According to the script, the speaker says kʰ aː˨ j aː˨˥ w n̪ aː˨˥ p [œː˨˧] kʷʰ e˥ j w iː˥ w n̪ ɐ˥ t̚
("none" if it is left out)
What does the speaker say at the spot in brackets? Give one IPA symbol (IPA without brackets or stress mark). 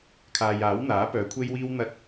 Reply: œː˨˧